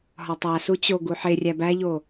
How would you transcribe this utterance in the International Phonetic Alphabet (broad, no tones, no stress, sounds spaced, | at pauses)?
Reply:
ɦ ɒ tˤ æ s u t͡ɕ o ɡ u ħ e rʲ æ b æ ʎ o